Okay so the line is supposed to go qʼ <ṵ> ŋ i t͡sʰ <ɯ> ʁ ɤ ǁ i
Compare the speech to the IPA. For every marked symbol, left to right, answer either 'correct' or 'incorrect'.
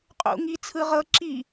correct, correct

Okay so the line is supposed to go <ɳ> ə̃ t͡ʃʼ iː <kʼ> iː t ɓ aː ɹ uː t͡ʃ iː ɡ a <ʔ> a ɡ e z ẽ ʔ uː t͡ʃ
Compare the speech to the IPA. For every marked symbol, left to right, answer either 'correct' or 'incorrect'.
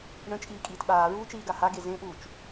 correct, correct, incorrect: h

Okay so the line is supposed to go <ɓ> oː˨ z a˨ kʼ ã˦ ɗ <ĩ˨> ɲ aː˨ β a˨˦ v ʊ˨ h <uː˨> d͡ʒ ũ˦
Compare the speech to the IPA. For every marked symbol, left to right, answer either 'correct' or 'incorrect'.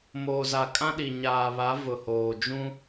incorrect: m, incorrect: i˨, incorrect: oː˨

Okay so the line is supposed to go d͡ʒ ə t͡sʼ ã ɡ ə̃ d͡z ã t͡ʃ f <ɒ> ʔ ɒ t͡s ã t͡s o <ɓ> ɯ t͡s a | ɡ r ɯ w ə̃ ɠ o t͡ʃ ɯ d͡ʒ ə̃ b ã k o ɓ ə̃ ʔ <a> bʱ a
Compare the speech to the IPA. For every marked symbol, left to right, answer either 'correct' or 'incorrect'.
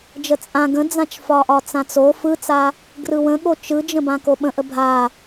correct, incorrect: f, incorrect: ə

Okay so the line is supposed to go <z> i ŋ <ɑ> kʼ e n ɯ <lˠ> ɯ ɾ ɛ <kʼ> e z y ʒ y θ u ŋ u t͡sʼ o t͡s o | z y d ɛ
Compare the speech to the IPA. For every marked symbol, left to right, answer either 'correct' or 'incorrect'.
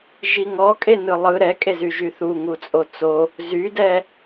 incorrect: ʒ, incorrect: ɔ, correct, correct

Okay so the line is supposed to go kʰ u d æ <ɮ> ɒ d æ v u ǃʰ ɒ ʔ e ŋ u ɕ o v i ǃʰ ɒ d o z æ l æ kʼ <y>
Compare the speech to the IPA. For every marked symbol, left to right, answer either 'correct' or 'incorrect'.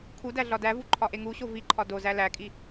correct, incorrect: i

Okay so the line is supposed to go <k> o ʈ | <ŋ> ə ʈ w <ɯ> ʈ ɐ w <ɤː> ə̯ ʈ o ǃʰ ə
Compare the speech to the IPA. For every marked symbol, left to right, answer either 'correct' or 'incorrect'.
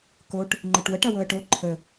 correct, incorrect: ŋ͡ǃ, incorrect: ə, incorrect: ɤ

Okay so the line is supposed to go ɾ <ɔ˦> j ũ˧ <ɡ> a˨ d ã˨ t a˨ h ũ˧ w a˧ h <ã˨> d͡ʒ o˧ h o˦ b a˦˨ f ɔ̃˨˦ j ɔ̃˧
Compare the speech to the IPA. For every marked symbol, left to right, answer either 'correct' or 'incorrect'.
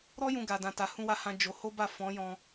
correct, correct, incorrect: ã˧

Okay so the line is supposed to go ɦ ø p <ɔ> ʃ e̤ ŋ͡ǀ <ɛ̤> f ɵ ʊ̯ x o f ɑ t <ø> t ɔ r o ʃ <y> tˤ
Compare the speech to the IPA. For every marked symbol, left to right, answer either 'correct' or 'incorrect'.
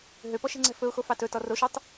correct, correct, incorrect: ɵ, correct

